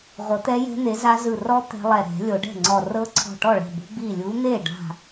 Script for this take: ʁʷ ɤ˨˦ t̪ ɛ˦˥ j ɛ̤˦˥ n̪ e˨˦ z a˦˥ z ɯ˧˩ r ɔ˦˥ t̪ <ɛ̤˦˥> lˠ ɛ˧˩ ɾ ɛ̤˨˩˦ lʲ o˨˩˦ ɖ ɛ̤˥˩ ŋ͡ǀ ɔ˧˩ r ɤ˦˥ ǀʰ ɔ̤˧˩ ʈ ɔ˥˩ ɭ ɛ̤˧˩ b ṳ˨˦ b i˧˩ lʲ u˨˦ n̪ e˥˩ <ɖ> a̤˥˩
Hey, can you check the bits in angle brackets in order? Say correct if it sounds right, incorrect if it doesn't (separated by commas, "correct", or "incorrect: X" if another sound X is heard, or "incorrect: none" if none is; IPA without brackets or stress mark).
correct, correct